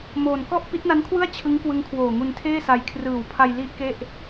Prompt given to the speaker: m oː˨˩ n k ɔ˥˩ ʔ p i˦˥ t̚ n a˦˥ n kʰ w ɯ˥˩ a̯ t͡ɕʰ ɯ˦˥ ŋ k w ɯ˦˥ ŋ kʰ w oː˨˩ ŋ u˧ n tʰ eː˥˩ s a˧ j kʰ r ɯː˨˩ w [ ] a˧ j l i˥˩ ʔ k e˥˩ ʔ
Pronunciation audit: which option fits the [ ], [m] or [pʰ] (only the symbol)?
pʰ